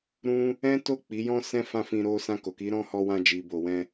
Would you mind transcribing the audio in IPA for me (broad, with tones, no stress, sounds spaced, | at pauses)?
ɾ ũ˦ | ɛ̃˦ t o˦˨ k͡p i˨˦ j ɔ̃˦ s ɛ̃˦ f ã˦˨ f ĩ˧ ɾ o˧ s ã˧ k o˨ k i˨˦ ɾ ɔ̃˦˨ h ɔ˧ w ã˧ d͡ʒ i˨ b o˨ w ɛ̃˧